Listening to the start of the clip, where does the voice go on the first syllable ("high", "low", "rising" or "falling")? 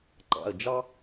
falling